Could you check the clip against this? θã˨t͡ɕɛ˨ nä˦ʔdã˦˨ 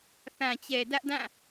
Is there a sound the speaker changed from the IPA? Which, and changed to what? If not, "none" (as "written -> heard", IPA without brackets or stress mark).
n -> d